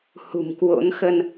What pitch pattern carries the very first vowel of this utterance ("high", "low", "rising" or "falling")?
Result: low